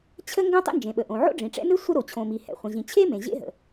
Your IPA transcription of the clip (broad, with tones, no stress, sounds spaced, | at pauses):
t͡ɕʰ ə˥ ŋ ɡ õ˥ tˤ ḛ˥ n d͡ʒ ẽ˩ ɓ ə˩ ʔ õ˩ ʕ o̰˥ ɖ͡ʐ ĩ˩ ʈ͡ʂ ɛ̰˥ n ɨ˥ sʷ ə˥ ɾ o˩ t͡ɕʰ õ˩ m i˩ h ɛ̰˩ χʷ ə̃˩ ʑ ĩ˩ t͡ɕʰ e˥ m ẽ˩ ʑ ḛ˥ ɦ ə̰˩